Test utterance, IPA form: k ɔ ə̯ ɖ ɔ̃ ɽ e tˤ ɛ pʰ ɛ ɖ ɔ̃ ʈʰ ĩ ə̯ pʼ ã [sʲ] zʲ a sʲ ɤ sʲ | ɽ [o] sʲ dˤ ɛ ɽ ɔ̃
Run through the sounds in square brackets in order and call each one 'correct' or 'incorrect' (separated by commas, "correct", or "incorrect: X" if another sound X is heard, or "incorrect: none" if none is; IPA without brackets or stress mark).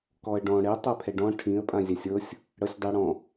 incorrect: none, incorrect: ɤ